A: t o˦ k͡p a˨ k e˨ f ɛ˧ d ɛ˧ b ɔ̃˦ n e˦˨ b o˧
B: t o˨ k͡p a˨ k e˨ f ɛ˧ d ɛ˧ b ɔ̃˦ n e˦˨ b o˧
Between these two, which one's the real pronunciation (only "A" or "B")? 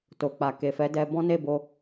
B